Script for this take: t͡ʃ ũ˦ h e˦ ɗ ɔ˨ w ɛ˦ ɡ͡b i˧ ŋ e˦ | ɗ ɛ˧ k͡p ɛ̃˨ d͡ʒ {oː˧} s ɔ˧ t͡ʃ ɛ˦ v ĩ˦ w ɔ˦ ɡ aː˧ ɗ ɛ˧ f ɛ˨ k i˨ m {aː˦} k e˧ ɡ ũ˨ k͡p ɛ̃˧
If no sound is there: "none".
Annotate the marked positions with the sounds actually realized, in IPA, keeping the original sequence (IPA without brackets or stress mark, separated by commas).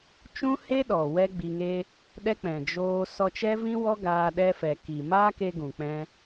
oː˧, aː˦